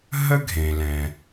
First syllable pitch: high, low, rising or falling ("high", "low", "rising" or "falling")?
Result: high